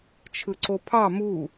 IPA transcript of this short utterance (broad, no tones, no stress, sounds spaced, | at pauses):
t͡ʃʰ ɯ ǀ o pʰ ɑ m u